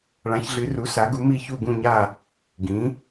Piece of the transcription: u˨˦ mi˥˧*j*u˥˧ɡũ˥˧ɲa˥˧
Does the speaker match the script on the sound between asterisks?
no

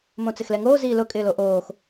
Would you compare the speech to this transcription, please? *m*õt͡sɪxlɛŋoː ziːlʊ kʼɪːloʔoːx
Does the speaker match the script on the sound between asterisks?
yes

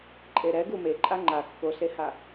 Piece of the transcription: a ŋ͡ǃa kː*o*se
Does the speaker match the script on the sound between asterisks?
yes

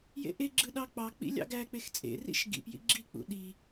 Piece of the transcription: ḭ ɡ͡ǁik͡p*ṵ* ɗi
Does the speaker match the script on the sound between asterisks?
yes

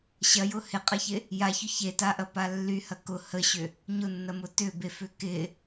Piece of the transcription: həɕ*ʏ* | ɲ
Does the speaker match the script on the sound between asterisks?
yes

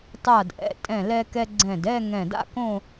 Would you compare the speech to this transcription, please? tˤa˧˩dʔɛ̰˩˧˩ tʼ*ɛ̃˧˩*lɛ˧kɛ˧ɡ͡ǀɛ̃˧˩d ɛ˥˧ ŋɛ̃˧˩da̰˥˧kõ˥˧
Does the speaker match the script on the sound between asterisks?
yes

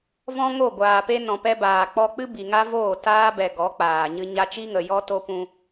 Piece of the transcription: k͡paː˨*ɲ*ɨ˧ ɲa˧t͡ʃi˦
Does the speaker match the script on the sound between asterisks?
yes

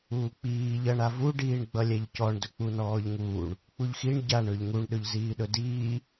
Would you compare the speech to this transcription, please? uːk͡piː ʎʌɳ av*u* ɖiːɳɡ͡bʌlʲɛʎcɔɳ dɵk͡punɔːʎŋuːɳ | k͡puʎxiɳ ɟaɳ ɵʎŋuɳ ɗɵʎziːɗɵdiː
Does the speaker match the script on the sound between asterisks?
yes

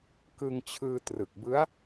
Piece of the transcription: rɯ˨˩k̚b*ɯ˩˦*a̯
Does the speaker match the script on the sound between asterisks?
no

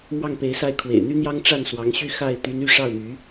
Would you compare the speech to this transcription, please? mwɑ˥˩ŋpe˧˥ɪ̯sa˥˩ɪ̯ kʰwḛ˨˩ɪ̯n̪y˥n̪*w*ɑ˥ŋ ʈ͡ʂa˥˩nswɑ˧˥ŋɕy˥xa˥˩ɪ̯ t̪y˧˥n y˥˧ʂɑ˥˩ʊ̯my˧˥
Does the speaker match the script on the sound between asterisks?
no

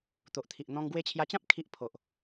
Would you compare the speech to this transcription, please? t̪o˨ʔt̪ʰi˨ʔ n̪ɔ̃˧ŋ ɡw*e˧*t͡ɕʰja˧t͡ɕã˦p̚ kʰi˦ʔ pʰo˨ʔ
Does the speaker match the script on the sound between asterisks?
yes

